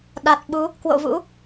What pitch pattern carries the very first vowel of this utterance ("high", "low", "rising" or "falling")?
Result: low